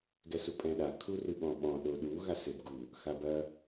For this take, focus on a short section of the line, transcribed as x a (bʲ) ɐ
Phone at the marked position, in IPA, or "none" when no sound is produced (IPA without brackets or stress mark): b